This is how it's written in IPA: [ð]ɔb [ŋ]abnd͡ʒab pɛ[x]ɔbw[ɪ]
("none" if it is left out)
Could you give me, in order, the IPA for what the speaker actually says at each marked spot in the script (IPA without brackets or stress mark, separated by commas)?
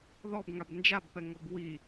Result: ð, ŋ, ŋ, i